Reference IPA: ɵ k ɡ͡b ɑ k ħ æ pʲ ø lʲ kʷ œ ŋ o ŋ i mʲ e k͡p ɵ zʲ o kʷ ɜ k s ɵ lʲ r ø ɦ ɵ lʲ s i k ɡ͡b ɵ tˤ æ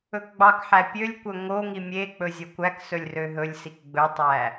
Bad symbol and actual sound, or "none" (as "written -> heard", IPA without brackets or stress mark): ɜ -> æ